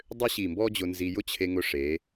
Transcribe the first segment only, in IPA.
dˤ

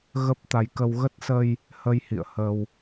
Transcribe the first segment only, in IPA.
ɣ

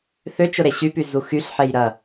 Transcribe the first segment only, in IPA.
θ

